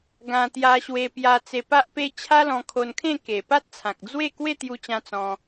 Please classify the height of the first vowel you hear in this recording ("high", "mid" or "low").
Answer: low